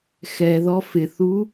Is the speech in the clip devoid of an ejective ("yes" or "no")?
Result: yes